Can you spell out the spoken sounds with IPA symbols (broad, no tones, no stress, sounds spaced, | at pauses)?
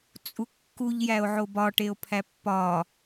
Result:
t͡sʼ u kː u ʎ j æ o̯ ʕ o b ɒ ʈ e o̯ pʰ æ pː ɒ